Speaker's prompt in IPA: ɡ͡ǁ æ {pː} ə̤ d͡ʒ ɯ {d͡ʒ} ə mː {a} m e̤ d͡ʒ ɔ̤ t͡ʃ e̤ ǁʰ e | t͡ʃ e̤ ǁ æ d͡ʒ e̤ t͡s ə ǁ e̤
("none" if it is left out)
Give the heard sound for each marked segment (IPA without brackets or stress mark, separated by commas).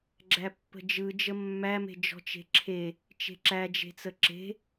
pː, d͡ʒ, æ